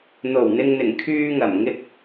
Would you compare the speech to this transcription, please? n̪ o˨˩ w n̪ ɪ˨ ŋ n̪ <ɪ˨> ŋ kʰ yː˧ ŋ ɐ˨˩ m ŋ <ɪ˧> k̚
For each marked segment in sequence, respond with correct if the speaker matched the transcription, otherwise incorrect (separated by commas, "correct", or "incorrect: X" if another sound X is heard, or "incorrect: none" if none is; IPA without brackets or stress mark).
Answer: incorrect: ɪ˨˩, correct